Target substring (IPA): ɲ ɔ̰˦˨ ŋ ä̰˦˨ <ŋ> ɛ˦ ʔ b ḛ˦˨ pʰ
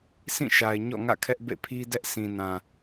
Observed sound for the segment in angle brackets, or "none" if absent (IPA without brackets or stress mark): kʰ